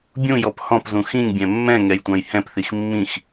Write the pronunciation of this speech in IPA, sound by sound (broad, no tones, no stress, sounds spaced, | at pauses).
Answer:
bʲ ũ j ɔ p h ɔ̃ p z ũ x ĩ ŋ bʲ ɛ̃ mː ɛ̃ ŋ ɛ j tʷ ɑ̃ j h ɛ̃ p θ i x mː ĩ x